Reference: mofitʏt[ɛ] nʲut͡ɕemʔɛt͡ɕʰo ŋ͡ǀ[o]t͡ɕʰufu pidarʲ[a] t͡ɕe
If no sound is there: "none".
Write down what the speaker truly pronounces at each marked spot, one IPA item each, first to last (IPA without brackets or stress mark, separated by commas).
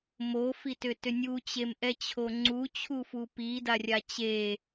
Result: ʏ, u, a